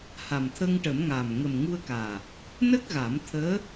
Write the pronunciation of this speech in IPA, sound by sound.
ha˨˩mt̪ʰə˧ŋʈə˨˩˦mŋa˨˩m ŋə˨˩mŋu˧ə̯kaː˨˩ | nə˦˥k̚ɣa˨˩˦m t̪ʰəː˧˥

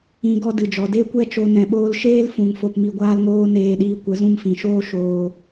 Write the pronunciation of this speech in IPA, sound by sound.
ĩ˨ ɡɔ˧dɨ˨d͡ʒɔ˨ de˦kʷɛ˦t͡ʃo˧ nɛ̃˨ɓoː˧lʃeː˦l fũ˨ŋ fo˧pmi˧ɡʷaː˦lŋoː˦ neː˧ɗiː˧kʷə˨˦ zũ˧mfĩ˨ʃoː˦ ʃoː˧

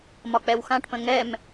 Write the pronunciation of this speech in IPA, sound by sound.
mɒk͡pɛwxãʈpə̃ ŋɛm

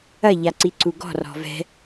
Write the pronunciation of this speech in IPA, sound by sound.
ɐ ʎaǀiǀuɡɔ̤ rɔ̤vɛ̤

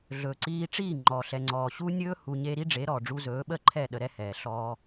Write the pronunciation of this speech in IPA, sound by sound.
ɮɵː˨ǀiː˧ʈ͡ʂiː˦˨ ŋ͡ǃɔː˨ɬɛ˨ŋ͡ǀɔː˨ ɕu˧nʲɵː˧ hu˧ɲe˦ ɾi˦ɖ͡ʐe˨˦ɾɔː˨ ɖ͡ʐu˧zɵː˨˦ɓə˦˨ǃʰɛ˦˨ ɗə˧ɾɛ˦hɛː˨ ɬɔː˧

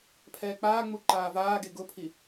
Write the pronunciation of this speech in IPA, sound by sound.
pʰɛːk͡paːŋ͡mu ǃaːvaːɡe ɡʊpʰi

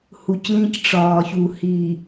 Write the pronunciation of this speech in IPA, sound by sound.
hu˨clĩ˦c ʈ͡ʂɒː˨çu˨ hi˨

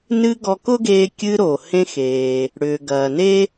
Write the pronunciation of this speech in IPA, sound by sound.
nɨ˧ ɡɔ˧kʊ˥ɡeː˧ kʲɨ˧ɾo˩ hẽ˧xeː˩ | ɽʏː˩ɡɐː˩ne˥

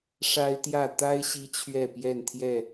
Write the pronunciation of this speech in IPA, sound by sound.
ʂa˦ɪ̯t̪jä˥˨ t̪a˦ɪ̯ ɕi˦t͡ɕʰɥɛ˥˨pjɛ˥˨nt̪ʰjɛ˥˨

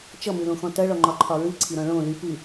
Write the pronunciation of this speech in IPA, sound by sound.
t͡ʃʌmɨlõxɔ̃ tʌɭɔŋ͡ǃɒǃʰɒ ɹɨǀʰiɾɔ̃ ɭõ ly pɨ

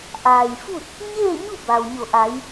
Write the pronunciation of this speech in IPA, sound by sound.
ʔaː˩jfu˥˨t̚ | ɲeː˥˨ɲu˥˨ ba˩wɲo˧˩ʔa˩˧j

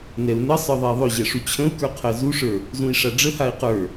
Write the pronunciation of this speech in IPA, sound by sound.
nɛu̯nəsˤə˞ ðˤɛi̯ðˤɵʑɛ ʂut͡ɕʰə̃u̯kə˞ qʰɜzuʂə˞ | zũi̯ʂaɖ͡ʐəhai̯ qə˞

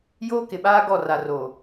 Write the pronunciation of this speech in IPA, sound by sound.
joː˦kɪ˨ɓaː˦ ɡɔ˦˨ra˨ro˨

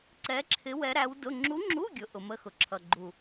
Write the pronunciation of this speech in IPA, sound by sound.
ǀɛ˧˥ǁʰɪ˧˥ wɛ˧˥ɾæ˧˥wdʊ˧˥˧ ŋ͡ǁu˧˥ŋ͡ǁu˧˥˧ɡʲʊ˩˧ ʔʊ˩˧mə˧˥˧ xʊ˩˧ǁʰʌ˨˩ ɡ͡ǃu˨˩

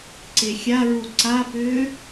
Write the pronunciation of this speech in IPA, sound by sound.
ǀexʲaɹu ǀapʏː

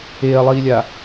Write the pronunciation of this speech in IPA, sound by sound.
eɐ̯lˠiːlʲa

